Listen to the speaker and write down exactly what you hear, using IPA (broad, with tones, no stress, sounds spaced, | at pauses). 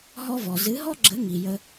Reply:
ɦ ɔ˦ v ɔ˨ z ɨ˨˦ ɦ ɔ˦ ɡ͡ǁ ə˨˦ ŋ i˨ j ə˧